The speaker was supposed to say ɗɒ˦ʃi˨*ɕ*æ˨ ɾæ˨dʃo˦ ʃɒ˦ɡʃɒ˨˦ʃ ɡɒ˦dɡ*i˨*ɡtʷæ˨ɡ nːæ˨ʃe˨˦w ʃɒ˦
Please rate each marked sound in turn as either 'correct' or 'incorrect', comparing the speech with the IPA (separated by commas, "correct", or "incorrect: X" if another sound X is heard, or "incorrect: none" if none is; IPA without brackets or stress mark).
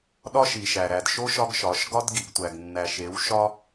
incorrect: ʃ, correct